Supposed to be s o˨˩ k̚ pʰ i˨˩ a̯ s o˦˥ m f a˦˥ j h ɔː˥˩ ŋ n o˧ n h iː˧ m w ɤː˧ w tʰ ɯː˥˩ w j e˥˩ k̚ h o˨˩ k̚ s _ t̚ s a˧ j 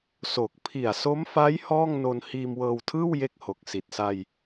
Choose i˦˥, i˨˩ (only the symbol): i˨˩